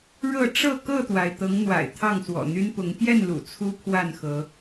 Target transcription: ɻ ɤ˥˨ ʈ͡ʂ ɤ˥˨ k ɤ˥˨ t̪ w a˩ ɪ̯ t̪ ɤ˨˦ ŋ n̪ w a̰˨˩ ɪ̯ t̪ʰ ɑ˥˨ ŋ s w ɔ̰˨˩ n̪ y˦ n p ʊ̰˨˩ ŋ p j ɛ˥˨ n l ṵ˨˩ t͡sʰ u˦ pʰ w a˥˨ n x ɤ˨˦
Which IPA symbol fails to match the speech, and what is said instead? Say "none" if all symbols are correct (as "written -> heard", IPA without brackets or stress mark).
ʊ̰˨˩ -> ʊ˨˦